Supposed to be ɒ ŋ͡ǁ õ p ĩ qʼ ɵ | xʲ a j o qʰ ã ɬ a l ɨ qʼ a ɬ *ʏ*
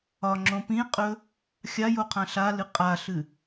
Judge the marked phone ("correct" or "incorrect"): incorrect